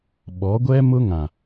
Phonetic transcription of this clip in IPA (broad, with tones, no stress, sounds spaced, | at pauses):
ɓ ɔ˨˦ ɡʷ ɛ˦ m ʊ˦ ŋ ã˨